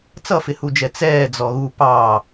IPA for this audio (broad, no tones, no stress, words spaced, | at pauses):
t͡sʌfɪhud͡ʒɛ t͡sɛː d͡zɔɣu pɑ